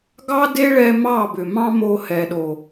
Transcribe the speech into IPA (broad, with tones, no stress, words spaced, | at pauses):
ɡɑ˦de˦ ɭɛ˧ mɑ˦˨bʏ˨mɑ̃˦mo˧ hɛ˨ɗo˨